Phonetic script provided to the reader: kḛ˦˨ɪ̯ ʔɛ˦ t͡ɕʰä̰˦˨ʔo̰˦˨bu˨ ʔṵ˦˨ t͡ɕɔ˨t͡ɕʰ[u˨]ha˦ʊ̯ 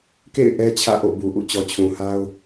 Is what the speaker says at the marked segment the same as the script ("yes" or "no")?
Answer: no